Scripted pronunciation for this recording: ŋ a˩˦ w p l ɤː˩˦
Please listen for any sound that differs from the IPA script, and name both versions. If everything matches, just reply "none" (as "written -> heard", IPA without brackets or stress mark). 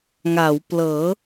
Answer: none